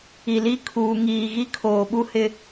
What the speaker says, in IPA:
i˨li˦ kʰuː˨ ŋiː˨ ɣi˦kʰoː˨ɓu˦ hɪ˦

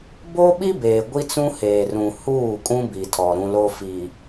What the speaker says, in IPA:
bo˦ɓi˦beː˨ ɡʷi˦t͡sũ˦heː˨rũ˨ huː˦˨kʼũ˦bi˨tʰɔ˨ ɾũ˦lo˦fi˨

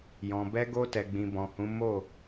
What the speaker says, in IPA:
jɔ̃˨ bɛ˧ɡo˧tɛ˨ɡ͡bĩ˨ bɔ̃˨hũ˨˦ mo˦˨

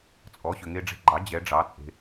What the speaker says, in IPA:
t͡sʼɔ˩˥ɕʏ˩ ŋe˧ɖ͡ʐe̤˧ɡ͡ǃɑ˩˥ d͡ʑɛ˩˥ɖ͡ʐɑ˩˥ t͡sʼe̤˩

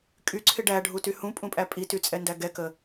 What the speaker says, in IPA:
kʼyǀʰɪ ɖæɖʱuty hũpʼũpʼæ pʼityt͡sʼɛndæ ɡɛkə

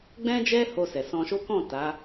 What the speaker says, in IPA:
ɡ͡bɛ̃˦d͡ʒɛ˦ho˧ sɛ˨sɔ̃˧ʃo˦ kɔ̃˦˨ ta˨˦

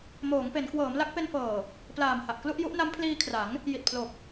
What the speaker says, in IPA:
moː˩˦ŋpe˩˦n kwɤː˩˦mla˦˥k̚pe˧nfɤː˨˩ | plaː˨˩mha˨˩ʔklu˥˩ʔ ju˦˥ʔ na˦˥mpʰliː˧kʰra˩˦ŋ | ji˨˩t̚pʰlo˨˩k̚

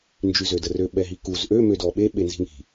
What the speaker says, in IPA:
nd͡ʒyzødərø ɓɛɦikuz ʔø mødɔɓe ɓenzi̤ŋi̤

